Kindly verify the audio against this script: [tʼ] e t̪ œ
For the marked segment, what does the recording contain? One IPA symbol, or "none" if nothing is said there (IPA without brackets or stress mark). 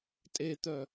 tʼ